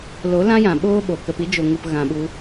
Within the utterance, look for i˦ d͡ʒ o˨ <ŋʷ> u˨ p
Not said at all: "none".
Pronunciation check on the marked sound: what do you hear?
ŋ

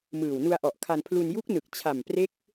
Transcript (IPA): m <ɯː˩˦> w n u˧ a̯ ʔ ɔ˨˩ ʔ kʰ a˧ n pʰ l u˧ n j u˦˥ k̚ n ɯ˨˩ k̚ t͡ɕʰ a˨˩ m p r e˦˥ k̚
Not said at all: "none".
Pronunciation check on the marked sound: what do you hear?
ɯː˨˩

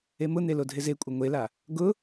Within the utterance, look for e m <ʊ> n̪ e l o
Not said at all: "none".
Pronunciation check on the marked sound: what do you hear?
ʊ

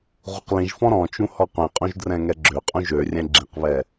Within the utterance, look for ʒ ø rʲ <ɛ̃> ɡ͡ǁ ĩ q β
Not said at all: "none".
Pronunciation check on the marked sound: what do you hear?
ɛ̃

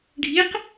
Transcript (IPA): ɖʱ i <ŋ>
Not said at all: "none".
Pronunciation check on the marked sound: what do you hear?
q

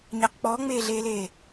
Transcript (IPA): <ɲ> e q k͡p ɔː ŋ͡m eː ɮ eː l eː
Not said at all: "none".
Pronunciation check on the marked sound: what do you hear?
ɲ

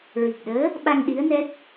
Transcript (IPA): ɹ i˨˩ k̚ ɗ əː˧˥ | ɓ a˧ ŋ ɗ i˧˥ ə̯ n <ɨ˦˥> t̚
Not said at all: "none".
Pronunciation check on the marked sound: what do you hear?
ɛ˦˥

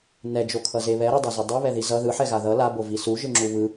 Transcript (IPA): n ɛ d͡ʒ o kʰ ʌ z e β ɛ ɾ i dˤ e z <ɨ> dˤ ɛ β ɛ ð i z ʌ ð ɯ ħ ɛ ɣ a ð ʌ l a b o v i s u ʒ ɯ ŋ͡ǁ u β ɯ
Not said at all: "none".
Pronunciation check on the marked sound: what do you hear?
e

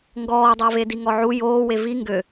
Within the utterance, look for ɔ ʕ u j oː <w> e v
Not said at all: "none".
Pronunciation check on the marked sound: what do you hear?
w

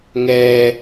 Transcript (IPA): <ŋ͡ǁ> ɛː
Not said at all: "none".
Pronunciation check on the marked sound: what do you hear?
ŋ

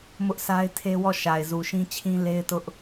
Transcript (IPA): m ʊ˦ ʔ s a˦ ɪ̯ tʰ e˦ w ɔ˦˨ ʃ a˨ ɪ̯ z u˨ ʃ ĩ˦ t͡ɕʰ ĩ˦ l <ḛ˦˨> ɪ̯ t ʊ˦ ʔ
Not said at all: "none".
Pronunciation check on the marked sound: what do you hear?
e˦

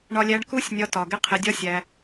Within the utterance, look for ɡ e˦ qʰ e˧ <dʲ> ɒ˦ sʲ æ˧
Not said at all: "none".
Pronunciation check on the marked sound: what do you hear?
dʲ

